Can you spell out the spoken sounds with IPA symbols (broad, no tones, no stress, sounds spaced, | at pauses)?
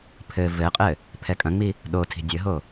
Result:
pʰ ɘ v ɘ qʼ ɘ | pʰ ɛ kʼ ɐ̃ ŋ͡m i | ɗ o tʰ i̤ dʲ ɘ ɦ o